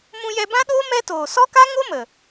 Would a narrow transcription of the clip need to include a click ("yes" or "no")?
no